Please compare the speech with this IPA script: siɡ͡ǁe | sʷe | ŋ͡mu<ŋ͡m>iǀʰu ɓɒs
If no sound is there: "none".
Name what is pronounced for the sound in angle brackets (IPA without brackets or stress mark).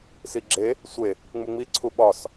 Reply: ŋ͡m